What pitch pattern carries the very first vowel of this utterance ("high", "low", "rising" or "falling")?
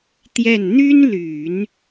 falling